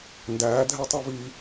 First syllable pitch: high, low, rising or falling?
rising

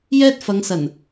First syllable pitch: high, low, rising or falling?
high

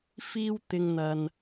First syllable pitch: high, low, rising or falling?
high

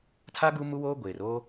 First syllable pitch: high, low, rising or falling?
high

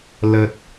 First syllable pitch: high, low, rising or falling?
low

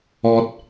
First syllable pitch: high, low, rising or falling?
high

